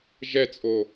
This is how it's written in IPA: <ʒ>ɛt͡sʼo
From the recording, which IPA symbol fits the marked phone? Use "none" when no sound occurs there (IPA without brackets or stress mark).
ʒ